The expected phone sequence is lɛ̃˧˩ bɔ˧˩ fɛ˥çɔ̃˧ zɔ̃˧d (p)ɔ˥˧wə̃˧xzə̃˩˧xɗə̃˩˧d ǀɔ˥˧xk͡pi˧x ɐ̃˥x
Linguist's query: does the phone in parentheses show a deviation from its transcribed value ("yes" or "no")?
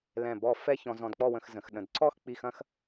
yes